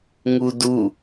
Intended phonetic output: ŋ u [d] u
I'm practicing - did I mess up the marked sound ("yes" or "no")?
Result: no